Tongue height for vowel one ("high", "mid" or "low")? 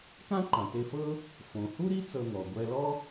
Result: low